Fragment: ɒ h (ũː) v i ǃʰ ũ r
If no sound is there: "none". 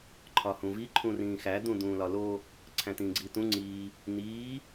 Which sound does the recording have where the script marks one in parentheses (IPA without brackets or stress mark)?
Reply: ũ